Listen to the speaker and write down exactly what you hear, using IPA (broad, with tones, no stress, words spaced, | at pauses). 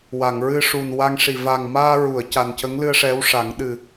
wa˨˩˨ŋɹɨ˧ʂu˨˩n wa˧ŋʂi˨˩ va˨˩ŋmaː˧ɹu˨˩˨ə̯ ca˨˩ncə˧˥ŋlɨ˧ə̯ ʂɛ˧˥wʂa˨˩˦ŋ ɗɨ˨˩